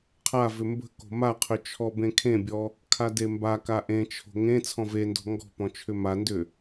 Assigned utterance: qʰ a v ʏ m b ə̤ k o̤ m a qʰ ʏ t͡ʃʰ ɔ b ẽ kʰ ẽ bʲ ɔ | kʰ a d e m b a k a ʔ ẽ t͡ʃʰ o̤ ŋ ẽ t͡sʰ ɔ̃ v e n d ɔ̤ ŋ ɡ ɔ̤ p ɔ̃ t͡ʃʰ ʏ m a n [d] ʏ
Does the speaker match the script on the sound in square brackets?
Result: yes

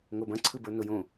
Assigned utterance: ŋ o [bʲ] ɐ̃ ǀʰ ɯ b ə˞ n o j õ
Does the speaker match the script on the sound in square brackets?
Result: no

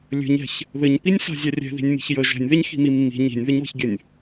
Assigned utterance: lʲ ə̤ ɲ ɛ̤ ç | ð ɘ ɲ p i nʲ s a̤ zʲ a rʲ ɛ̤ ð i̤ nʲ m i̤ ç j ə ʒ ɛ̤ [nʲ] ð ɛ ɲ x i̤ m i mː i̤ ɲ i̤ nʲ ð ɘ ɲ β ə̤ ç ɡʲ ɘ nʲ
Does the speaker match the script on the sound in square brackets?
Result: yes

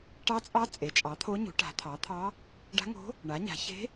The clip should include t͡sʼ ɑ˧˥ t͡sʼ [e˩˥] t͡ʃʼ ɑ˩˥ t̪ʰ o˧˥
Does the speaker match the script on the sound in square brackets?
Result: yes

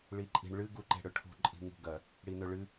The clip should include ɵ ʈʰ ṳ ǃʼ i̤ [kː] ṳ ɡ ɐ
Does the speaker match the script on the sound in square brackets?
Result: no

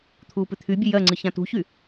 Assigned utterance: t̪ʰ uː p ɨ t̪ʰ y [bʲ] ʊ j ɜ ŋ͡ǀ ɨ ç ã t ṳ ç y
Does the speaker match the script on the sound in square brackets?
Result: yes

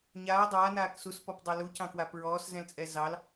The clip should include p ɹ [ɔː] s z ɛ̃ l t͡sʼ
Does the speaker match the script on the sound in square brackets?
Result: yes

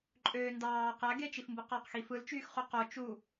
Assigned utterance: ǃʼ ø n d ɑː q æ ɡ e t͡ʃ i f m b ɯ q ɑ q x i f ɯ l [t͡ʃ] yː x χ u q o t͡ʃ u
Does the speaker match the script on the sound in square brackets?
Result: yes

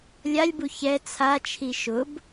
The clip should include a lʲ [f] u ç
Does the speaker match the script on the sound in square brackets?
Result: no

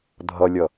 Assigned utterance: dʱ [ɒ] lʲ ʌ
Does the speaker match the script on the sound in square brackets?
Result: no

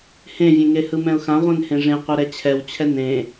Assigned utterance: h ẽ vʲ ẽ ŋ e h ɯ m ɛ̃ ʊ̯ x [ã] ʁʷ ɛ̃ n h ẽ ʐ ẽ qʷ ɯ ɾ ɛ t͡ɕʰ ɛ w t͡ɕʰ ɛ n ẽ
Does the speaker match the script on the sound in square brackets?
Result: yes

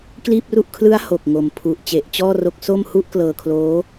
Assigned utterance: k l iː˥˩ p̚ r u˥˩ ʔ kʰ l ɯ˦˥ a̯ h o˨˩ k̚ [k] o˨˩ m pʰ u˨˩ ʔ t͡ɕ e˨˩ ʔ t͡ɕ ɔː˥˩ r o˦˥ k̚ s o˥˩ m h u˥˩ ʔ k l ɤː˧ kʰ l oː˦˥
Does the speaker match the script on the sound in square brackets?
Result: no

